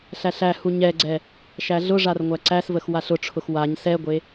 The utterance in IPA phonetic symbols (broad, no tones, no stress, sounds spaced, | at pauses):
ɬ æ ɬ æ h u ɲ ɛ ɡ͡ǀ ɛ | ʃ æ ɮ ʊ ʐ a r ŋʷ æ ǀ æ s v ə x w a ɬ ʊ ʈ͡ʂʰ ʊ x w a ɲ s ɛ ɡʷ e